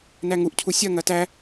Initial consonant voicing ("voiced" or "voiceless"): voiced